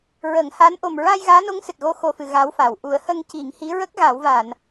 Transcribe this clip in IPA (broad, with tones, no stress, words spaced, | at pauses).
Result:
ɹə˨˩˦ŋha˧˥n ʔo˨˩mɹa˧j ɣaː˧˥no˧˥ŋsɨ˨˩t̚ɣo˧ xo˨˩fɨ˨˩˨ ɣa˧˥wfa˨˩w ʔu˨˩˦ə̯ hə˧ŋ ci˨˩˦ŋhi˧˥ ɹə˦˥k̚ɣa˨˩˦wva˨˩˨n